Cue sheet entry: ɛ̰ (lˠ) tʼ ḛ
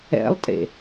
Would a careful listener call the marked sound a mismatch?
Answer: no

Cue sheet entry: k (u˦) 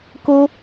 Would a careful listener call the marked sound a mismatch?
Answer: yes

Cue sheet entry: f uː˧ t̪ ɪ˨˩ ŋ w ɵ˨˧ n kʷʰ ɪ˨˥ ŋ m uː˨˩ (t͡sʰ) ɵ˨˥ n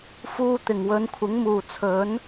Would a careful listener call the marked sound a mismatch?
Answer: no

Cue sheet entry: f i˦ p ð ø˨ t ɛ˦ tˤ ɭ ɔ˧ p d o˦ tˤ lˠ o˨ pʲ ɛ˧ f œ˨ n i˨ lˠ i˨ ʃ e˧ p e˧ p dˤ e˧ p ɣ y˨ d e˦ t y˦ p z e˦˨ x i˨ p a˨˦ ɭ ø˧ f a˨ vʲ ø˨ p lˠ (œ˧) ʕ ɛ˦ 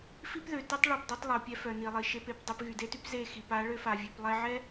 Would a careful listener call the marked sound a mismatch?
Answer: yes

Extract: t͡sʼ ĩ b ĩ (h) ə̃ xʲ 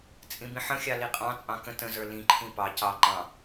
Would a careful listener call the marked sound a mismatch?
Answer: yes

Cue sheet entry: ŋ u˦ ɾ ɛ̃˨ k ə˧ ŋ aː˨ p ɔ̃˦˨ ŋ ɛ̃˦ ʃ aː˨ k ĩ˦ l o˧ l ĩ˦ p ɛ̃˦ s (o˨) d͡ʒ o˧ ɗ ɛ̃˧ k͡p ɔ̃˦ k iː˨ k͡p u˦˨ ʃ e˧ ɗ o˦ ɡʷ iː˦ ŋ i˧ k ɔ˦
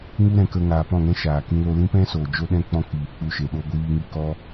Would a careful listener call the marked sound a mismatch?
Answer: yes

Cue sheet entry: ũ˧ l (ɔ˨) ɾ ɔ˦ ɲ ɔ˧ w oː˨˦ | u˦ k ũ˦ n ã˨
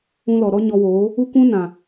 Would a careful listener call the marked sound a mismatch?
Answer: no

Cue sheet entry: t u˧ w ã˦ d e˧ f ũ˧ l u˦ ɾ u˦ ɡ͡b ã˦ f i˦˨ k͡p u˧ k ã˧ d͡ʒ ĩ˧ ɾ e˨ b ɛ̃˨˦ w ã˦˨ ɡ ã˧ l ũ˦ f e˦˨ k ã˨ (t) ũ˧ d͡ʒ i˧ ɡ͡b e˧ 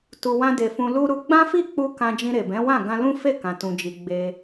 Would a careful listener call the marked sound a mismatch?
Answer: no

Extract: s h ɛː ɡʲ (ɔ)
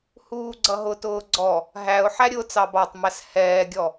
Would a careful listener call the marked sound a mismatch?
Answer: no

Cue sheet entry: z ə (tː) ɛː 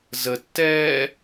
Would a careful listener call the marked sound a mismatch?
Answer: no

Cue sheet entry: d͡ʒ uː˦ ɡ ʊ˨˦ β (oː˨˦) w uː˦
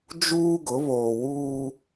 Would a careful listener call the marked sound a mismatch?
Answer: yes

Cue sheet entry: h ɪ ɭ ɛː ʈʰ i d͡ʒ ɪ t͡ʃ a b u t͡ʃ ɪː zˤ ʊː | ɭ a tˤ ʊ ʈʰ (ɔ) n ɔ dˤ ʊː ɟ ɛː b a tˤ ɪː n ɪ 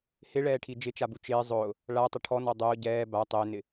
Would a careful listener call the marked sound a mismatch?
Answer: no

